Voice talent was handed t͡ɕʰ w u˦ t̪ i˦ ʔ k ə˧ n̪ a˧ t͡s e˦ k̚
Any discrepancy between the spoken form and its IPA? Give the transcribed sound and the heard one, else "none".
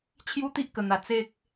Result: w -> j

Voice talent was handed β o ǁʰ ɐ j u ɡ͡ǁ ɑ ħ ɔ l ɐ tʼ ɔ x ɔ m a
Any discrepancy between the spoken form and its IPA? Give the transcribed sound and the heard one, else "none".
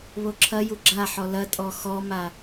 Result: ɑ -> a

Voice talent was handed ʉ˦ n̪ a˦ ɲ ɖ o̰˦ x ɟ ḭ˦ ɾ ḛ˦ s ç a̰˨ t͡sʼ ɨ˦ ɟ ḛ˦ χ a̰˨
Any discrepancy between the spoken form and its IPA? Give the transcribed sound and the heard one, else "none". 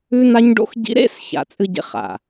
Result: none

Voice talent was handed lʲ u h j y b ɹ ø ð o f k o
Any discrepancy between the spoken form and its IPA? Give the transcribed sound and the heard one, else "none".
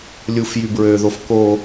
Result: h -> f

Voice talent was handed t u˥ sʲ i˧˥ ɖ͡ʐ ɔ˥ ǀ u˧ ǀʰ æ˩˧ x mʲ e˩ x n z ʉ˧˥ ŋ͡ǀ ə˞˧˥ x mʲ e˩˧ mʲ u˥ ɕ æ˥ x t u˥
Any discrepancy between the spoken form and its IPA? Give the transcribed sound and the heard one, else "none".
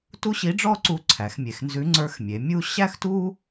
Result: sʲ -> ɕ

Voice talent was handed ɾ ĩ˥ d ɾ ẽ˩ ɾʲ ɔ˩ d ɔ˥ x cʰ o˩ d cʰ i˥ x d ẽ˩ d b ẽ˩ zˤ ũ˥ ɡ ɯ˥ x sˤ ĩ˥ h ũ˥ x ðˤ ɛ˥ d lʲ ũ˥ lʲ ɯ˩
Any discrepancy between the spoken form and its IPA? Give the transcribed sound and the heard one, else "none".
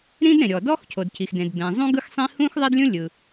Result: i˥ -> i˩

